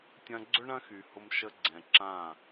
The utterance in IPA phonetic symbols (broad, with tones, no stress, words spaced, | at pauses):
tʲɐ̃˧ ɡ͡ǀʏ˦ ɳɐ̃˦xy˨ hʊ˧mʃə˧ɡ͡ǀɛ̃˨ ǁã˦˨